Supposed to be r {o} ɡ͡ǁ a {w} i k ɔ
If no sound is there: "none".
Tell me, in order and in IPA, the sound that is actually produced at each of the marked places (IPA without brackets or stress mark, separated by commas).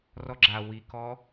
ɔ, w